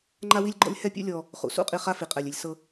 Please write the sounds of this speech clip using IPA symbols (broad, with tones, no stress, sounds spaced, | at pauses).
ŋ͡ǃ a˦ w i˦ lʲ ɡ͡ǃ ɔ̰˦ lʲ h ɛ˦ pʲ ṵ˦ lʲ ɔ˨ | χ ṵ˩ s ṵ˥ qʼ i˨ χ a˦ f i˩ qʼ ɛ˩ lʲ e˨ lʲ s ɤ˨